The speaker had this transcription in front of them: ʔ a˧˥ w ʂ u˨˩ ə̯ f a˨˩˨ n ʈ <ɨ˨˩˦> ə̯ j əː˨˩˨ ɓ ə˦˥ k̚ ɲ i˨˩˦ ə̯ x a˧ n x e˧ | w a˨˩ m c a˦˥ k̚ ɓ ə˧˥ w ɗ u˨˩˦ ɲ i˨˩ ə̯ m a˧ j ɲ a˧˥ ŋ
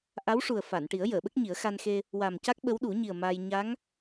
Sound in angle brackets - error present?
yes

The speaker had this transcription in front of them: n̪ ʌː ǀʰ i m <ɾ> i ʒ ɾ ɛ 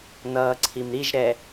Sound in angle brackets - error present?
no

